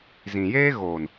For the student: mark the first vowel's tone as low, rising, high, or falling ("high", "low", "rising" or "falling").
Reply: low